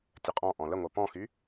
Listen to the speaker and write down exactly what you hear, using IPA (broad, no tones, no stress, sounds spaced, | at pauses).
tʲ ə qʼ ɔ̃ ʔ ɔ̃ l ə ŋʷ a p ɔ̃ x y